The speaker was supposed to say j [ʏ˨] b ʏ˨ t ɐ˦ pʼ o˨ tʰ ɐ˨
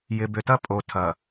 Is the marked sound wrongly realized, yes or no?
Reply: yes